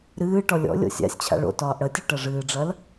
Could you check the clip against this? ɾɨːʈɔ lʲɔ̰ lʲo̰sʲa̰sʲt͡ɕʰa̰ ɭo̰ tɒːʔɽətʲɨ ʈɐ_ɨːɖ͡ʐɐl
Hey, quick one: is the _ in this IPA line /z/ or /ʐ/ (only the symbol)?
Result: ʐ